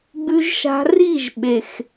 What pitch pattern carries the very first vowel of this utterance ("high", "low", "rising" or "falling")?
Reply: low